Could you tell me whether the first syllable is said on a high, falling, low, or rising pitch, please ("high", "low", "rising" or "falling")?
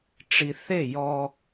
low